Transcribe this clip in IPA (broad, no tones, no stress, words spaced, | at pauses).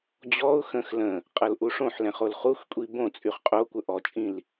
d͡ʑɔʊ̯ xə̃x lə̃ | qʼɤlʔuʂõħlɛ̃ χolχuxkʷʼi bõ t͡sʼyχqʼokʷə ʔɔt͡ʃʼĩl